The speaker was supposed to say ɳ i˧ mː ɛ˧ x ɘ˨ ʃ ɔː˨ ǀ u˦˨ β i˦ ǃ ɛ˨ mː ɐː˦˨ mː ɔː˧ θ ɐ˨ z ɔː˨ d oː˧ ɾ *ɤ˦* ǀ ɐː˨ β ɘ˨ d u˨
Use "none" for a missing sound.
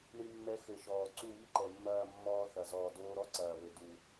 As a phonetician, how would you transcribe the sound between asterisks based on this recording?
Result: ɔ˦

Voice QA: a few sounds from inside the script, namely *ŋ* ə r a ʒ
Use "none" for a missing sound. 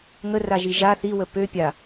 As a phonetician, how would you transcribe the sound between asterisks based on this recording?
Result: ŋ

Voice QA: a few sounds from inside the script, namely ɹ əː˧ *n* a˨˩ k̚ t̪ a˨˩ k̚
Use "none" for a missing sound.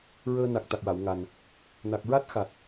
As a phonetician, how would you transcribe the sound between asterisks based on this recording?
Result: n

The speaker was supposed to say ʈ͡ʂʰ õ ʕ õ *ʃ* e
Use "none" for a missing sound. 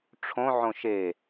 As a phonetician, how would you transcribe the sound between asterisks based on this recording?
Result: ʃ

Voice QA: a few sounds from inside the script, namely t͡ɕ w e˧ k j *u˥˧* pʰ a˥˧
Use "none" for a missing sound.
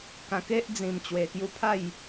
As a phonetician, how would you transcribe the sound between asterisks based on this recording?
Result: u˥˧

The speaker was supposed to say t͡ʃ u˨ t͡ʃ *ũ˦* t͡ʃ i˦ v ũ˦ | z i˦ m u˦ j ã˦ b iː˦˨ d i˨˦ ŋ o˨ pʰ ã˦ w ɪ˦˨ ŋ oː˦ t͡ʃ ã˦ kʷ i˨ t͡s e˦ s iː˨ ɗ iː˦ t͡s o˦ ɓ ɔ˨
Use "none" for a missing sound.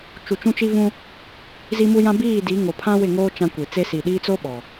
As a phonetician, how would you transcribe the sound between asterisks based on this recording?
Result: ũ˦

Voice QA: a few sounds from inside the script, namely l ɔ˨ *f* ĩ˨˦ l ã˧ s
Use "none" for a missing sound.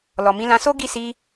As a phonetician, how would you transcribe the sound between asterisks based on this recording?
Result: m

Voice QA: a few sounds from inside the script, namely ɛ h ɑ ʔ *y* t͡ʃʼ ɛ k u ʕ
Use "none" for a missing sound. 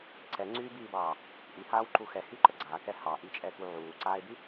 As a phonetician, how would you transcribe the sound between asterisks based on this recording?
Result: i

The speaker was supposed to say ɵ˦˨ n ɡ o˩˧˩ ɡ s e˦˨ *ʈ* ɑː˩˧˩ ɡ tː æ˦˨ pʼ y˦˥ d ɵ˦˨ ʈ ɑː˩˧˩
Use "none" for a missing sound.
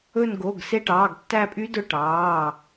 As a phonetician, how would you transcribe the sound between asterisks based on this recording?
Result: ʈ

